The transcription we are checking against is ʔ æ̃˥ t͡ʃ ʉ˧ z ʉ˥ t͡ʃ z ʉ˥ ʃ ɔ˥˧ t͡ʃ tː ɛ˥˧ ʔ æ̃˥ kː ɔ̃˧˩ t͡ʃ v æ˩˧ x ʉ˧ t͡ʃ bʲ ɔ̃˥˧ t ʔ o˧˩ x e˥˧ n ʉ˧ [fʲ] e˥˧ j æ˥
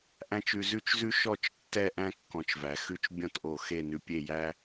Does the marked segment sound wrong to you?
yes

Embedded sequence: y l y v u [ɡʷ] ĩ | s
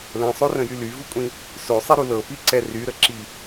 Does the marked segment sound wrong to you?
yes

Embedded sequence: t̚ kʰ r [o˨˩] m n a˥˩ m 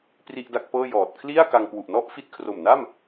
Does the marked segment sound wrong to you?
no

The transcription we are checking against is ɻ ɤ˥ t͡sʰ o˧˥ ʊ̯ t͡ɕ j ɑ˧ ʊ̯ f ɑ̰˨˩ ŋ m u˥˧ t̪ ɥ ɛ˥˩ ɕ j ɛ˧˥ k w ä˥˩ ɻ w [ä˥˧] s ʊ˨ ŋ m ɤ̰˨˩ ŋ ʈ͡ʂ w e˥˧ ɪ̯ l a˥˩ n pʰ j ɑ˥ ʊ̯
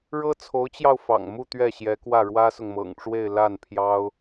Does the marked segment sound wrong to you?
yes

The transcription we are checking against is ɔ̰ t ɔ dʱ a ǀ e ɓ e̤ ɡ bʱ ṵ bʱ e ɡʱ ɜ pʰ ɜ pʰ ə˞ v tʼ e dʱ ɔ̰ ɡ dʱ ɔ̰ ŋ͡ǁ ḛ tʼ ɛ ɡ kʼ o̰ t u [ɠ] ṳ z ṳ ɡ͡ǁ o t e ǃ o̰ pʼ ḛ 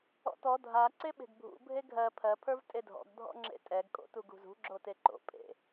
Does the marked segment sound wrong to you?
yes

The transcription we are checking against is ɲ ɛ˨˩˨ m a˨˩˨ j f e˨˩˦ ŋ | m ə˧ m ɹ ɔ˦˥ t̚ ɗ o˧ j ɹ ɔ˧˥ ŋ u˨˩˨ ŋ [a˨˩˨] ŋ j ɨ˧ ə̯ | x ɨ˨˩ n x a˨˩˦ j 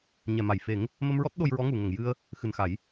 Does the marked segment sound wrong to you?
yes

